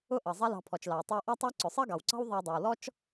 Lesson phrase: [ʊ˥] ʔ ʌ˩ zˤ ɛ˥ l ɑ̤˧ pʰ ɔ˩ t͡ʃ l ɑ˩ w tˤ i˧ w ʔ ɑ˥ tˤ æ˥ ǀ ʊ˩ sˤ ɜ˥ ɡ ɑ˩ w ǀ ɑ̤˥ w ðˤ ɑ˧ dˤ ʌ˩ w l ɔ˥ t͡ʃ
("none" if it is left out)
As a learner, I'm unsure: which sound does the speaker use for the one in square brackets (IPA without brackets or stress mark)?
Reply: ʊ˥